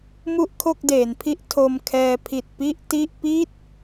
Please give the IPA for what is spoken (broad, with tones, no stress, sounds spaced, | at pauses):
m u˥˩ ʔ kʰ o˥˩ k̚ d eː˩˦ n pʰ i˦˥ ʔ tʰ o˧ m kʰ ɛː˧ pʰ i˨˩ t̚ p i˥˩ ʔ t i˥˩ ʔ p i˥˩ t̚